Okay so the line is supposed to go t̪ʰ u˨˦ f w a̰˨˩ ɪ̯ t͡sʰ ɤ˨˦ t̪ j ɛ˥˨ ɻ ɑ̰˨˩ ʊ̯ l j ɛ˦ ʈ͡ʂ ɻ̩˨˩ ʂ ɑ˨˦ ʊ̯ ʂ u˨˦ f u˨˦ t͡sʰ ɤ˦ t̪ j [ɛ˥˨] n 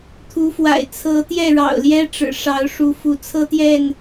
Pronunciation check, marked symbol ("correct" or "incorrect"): correct